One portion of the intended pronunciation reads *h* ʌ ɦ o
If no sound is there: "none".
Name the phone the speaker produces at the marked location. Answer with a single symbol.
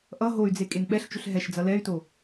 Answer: ʔ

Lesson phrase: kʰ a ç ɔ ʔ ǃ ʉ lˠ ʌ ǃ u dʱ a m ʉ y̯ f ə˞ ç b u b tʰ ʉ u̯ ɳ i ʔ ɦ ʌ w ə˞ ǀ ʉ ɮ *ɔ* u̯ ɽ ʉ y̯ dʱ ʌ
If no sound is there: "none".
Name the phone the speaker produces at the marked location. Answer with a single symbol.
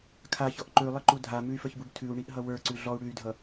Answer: ɔ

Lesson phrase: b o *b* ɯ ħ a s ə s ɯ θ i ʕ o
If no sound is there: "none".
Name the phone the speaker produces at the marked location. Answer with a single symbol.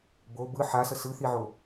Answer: b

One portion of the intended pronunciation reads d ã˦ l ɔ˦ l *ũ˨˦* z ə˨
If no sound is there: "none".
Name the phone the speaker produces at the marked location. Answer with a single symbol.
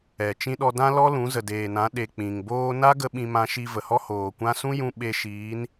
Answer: ũ˨˦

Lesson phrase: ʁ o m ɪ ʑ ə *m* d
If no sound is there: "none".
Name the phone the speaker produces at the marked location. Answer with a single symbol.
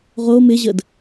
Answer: none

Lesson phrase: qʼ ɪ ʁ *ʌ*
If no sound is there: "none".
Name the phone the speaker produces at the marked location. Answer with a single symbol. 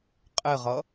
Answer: ʌ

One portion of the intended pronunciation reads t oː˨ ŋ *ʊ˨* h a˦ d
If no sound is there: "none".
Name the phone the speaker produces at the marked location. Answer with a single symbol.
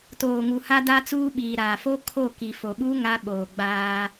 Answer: u˨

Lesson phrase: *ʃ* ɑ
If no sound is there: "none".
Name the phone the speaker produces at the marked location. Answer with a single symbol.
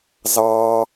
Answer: z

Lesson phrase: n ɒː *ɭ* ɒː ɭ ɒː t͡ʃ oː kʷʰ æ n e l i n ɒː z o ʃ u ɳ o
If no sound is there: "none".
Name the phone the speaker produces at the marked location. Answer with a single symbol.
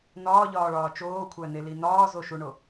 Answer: ʎ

